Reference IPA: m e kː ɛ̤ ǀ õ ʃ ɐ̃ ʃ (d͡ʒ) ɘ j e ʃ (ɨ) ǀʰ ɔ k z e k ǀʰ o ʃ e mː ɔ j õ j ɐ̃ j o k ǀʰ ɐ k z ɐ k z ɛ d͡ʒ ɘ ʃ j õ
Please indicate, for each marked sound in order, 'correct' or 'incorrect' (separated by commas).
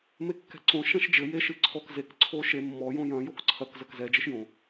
correct, correct